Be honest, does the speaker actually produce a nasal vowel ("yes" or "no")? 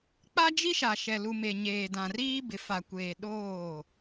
yes